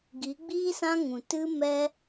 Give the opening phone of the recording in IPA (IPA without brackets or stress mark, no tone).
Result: ɡ